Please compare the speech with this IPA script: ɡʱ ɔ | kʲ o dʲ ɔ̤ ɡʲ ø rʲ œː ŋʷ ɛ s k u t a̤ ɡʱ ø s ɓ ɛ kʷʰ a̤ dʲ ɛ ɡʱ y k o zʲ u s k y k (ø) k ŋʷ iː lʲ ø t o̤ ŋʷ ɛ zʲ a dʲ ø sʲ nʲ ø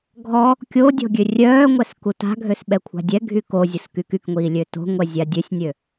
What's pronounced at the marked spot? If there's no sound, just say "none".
y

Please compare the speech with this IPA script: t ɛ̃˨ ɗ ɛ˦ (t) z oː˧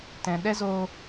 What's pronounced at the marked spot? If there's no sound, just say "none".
none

